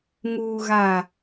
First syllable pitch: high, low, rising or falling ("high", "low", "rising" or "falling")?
low